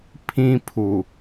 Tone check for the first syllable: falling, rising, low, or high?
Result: high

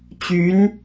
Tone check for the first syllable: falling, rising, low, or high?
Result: rising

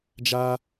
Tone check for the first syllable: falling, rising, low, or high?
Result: high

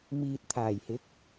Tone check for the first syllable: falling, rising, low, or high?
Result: low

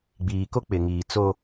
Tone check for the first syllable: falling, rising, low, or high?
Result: low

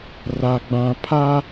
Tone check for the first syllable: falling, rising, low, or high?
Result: low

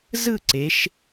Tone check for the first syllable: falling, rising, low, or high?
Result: falling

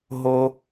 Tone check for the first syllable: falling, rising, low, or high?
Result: high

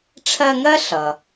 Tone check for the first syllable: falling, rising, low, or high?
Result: high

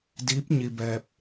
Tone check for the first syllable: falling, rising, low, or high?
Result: rising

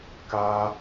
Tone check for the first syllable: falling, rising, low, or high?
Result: high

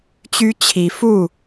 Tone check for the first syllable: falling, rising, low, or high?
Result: high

